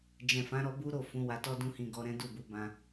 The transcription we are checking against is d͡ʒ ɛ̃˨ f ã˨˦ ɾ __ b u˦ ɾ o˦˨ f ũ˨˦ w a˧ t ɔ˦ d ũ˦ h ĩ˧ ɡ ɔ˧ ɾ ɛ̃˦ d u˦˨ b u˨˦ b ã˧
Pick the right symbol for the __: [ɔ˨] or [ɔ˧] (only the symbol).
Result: ɔ˧